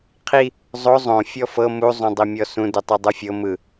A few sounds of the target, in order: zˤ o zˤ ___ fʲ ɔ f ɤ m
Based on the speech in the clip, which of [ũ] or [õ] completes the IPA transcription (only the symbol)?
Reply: õ